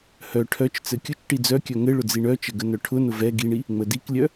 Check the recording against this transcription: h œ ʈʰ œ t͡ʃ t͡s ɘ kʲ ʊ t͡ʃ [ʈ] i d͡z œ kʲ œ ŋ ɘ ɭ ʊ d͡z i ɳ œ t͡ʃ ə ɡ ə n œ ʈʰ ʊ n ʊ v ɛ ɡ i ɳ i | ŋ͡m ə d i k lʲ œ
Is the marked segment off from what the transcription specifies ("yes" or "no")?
no